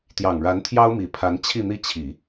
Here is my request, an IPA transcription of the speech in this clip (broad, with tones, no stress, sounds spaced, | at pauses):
t̪ j ɑ˨˩ ŋ ɻ a˧˥ n t̪ʰ j ɑ˥ ʊ̯ m i˨˩ pʰ a˧˥ n t͡ɕʰ i˥˧ n̪ i˥˩ t͡ɕʰ i˨˩˦